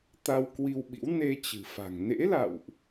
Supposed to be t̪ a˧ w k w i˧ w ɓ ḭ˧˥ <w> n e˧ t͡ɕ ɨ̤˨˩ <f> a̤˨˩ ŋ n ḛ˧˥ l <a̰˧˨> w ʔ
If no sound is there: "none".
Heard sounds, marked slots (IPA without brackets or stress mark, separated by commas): w, f, a̰˧˨